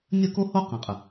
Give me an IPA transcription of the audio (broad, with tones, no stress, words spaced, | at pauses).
nʲə˥˧ko˥ho˥ qã˥qʼə˥˧